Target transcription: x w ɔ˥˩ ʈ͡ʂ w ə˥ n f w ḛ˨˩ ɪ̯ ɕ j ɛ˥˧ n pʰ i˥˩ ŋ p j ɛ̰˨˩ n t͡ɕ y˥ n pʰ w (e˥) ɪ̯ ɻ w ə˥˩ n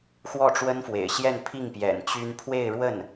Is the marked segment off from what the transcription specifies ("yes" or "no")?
yes